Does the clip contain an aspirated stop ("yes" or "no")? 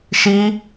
no